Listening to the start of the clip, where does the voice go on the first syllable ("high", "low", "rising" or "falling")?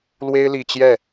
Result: high